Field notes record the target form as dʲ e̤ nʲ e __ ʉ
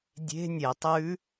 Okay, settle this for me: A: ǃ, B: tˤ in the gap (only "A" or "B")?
B